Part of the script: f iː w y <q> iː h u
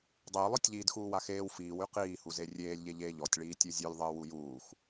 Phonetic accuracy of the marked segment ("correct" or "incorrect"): correct